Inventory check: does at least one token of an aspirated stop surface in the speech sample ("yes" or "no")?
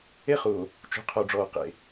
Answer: yes